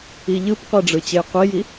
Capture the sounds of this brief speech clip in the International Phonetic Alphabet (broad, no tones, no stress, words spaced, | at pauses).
iʎɯpqʷeɖ͡ʐɯ t͡ɕejqʷiji